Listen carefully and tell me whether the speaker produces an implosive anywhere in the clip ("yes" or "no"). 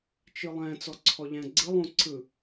no